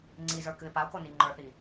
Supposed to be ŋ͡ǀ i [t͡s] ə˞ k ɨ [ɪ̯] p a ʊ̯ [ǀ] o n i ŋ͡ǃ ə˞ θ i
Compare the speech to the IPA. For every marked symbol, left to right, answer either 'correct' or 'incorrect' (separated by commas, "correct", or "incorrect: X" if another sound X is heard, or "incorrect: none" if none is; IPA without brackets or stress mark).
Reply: incorrect: z, correct, incorrect: k